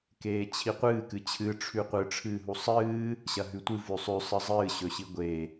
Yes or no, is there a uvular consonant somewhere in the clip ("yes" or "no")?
yes